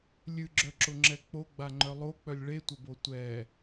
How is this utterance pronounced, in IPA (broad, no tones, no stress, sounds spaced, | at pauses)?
lʲ ɨ ɡ͡ǁ œ ǁ ʊ ŋ͡ǁ ɛ k͡p o ɡ͡b a ŋ͡ǃ œ lˠ o k͡p œ lʲ ɭ e tʷ ɐ b o tʷ ɛ